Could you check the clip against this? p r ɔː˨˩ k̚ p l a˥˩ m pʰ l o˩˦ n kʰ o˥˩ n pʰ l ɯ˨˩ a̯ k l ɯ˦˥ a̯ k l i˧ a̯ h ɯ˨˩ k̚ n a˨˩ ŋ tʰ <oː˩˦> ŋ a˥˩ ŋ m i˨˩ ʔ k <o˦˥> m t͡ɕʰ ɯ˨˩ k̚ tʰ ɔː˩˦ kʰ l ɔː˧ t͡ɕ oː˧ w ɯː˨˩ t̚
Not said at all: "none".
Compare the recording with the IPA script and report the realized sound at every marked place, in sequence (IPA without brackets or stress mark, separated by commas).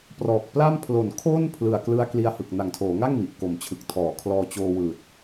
oː˩˦, o˨˩